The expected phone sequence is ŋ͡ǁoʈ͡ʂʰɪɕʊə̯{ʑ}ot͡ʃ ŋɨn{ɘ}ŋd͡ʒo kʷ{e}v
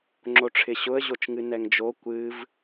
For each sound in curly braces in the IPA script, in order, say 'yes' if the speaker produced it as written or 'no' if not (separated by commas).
yes, no, no